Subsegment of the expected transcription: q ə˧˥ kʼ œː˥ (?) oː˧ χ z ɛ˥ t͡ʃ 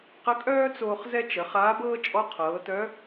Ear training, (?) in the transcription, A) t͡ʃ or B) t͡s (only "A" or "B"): B